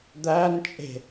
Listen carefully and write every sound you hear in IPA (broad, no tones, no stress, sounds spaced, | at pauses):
d̪ æ n t͡ʃʼ e̤